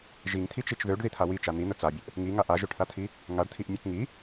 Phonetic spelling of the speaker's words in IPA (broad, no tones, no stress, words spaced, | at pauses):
ʒiŋt̪ʰit͡ʃit͡ʃ ðøɖðit̪ʰa wit͡ʃa n̪in̪ə t͡sabʲəʔ | ŋiŋa ʔaʒøʈθat̪ʰi | ŋaɖt̪ʰiʔmʲøk ŋi